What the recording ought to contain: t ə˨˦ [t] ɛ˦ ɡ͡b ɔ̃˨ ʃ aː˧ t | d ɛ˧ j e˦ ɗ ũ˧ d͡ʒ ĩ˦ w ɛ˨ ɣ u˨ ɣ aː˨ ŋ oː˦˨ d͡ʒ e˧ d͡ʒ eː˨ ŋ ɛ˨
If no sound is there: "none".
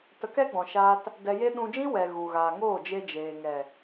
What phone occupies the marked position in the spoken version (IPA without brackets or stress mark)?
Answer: k